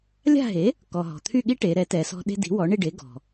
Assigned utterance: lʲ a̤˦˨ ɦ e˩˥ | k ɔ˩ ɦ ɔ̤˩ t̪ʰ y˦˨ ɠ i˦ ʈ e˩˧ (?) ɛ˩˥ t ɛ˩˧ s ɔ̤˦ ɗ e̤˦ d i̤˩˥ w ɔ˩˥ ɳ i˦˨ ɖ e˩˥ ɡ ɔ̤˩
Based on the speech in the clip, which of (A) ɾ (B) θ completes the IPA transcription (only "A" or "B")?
A